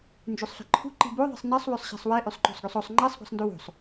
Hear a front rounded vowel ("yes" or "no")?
yes